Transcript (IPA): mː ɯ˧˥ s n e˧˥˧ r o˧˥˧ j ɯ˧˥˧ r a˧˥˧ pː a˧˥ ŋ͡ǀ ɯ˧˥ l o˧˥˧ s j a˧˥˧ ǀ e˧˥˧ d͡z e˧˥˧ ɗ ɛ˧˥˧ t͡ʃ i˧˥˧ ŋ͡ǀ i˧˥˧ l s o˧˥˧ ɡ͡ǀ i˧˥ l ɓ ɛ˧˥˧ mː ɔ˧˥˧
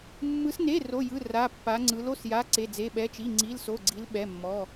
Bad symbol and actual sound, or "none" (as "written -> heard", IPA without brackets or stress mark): ɗ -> ɓ